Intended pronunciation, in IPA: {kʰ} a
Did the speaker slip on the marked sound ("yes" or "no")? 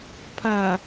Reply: yes